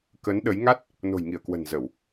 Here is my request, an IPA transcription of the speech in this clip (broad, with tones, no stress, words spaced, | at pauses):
kə˨˦nɗə˨˦j ŋa˦˥t̚ | no̤˨˩jŋi˧˩ə̯kwə̤˨˩n zə˧˩˨w